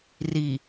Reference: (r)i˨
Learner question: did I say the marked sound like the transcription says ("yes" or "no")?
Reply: yes